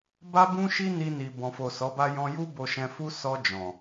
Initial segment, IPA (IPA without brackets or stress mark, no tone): b